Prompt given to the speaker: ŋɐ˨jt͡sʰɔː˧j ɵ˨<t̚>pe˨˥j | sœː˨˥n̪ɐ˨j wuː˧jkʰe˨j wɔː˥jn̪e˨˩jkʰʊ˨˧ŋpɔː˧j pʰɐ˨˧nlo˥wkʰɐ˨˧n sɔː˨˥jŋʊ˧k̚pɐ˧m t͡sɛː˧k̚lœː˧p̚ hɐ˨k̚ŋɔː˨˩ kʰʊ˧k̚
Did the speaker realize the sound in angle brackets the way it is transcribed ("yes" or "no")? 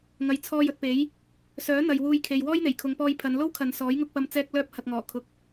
yes